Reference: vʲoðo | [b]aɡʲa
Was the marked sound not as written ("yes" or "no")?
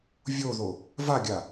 yes